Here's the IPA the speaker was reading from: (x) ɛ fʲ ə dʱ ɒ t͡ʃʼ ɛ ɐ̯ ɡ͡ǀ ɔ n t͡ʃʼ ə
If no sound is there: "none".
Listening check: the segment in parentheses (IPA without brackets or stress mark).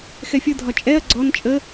x